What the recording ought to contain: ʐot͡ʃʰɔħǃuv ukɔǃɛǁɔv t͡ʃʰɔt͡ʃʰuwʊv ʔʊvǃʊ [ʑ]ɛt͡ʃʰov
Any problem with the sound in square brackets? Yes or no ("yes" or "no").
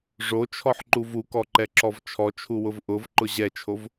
no